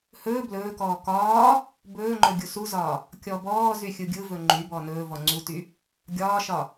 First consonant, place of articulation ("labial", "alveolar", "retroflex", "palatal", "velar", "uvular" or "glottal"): glottal